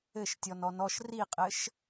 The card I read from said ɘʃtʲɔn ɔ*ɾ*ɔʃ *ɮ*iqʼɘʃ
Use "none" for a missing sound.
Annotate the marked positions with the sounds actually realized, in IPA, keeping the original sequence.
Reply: n, r

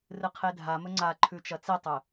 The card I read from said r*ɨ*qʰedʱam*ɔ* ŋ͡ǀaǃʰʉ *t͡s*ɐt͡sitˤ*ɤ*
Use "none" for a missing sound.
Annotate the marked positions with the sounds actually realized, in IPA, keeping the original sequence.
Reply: ɨ, ɵ, t͡ʃ, ɵ

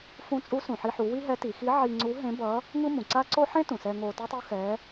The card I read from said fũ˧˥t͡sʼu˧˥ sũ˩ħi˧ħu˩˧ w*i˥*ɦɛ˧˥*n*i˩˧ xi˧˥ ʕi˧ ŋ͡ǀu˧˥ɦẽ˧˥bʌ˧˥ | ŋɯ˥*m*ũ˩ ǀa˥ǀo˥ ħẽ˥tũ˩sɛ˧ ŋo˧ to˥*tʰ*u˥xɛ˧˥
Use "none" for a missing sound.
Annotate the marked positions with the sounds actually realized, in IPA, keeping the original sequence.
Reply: i˥, t, m, tˤ

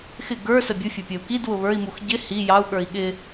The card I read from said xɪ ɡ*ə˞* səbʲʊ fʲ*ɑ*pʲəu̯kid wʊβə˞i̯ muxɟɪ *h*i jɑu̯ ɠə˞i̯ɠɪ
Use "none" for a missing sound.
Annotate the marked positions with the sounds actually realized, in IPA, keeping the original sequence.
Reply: ə˞, ʌ, h

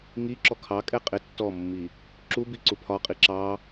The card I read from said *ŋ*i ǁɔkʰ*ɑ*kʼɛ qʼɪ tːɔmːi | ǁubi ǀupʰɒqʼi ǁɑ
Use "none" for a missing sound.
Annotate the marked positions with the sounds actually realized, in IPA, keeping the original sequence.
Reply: ŋ, ɑ

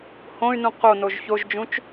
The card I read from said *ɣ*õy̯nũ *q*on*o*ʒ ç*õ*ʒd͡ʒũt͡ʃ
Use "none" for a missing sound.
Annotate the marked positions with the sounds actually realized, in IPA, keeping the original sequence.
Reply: h, q, o, o

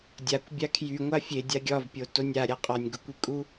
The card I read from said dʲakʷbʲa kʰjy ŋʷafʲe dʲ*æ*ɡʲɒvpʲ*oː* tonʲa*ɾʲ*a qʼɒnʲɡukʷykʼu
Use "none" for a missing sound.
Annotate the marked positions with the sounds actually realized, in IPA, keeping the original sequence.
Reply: a, o, ɾʲ

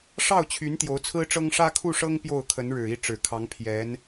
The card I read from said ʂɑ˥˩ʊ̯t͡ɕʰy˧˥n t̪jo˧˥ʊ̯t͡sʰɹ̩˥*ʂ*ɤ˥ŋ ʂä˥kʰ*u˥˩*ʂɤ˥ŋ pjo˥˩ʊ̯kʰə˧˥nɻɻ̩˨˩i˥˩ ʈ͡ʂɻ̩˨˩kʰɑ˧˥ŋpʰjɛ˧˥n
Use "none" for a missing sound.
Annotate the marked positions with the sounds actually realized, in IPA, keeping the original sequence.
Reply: ʈ͡ʂ, u˥˩

